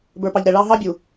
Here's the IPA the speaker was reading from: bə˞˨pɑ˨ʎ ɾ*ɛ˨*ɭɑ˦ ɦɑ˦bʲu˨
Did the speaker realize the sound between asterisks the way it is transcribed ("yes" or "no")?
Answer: yes